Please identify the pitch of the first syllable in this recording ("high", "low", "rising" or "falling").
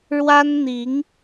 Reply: high